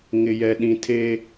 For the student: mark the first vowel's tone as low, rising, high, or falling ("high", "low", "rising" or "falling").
low